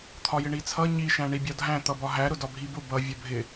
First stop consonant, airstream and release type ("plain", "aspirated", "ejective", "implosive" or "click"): aspirated